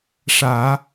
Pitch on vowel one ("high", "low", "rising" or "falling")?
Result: low